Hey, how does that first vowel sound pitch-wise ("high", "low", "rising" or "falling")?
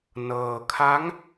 low